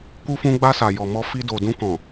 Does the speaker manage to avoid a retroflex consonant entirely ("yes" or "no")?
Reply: yes